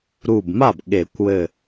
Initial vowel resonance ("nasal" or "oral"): oral